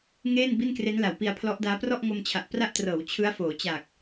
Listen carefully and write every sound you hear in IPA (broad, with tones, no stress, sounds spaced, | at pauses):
ŋ eː˥˩ n b i˥˩ n k r e˦˥ n l a˩˦ w p i˧ a̯ pʰ l ɔ˦˥ ʔ d aː˦˥ p r ɔ˥˩ ʔ ŋ o˧ m t͡ɕʰ a˨˩ ʔ p r a˥˩ ʔ t r ɤː˩˦ w t͡ɕʰ ɯ˦˥ a̯ f oː˩˦ t͡ɕ a˨˩ k̚